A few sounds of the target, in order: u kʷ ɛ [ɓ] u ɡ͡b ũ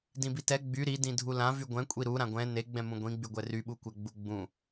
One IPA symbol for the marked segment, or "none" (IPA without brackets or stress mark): ɡ͡b